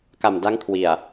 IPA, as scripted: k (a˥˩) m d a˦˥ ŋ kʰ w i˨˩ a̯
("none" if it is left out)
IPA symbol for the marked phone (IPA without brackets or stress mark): a˨˩